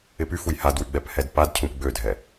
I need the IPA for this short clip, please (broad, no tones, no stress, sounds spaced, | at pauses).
ɪ p y f u j h a d w y ɡ͡b ɛ p h ɛ d p a d cʰ ũ p ɡ͡b ø dʱ ɛ